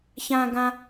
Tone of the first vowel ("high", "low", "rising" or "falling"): high